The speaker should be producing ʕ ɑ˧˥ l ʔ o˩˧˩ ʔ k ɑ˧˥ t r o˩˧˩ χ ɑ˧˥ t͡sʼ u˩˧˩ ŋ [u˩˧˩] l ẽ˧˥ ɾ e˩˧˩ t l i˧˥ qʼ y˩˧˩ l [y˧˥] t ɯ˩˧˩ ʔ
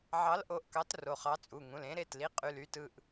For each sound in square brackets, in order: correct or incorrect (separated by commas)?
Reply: incorrect, correct